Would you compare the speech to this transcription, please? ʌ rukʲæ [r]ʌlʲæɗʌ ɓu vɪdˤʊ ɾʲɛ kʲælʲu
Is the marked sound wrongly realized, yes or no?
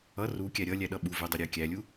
yes